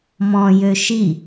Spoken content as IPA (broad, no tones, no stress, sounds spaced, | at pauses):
m ɔ̃ j ø ʃ i